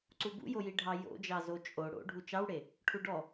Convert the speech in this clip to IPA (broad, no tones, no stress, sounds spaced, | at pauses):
ǀ u b ṵ j o j i ɖʱ ɑ j o̰ d͡ʒ ɑ z o t͡ʃʼ o ɽ o̰ ɖʱ u t͡ʃ ɑ w ɽ e | ʈʰ u ɖ ɔ